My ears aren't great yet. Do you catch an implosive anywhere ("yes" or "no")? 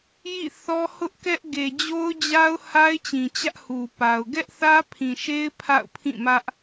no